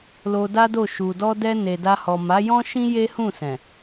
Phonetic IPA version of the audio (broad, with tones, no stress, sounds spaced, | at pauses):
l o˧ d a˦ d o˦˨ ʃ u˨ d ɔ˧ d ɛ˧ n e˨ d a˧ h ɔ˨ m a˨˦ j ɔ̃˦ ʃ ĩ˦ j e˦ h ũ˦˨ s ɛ̃˨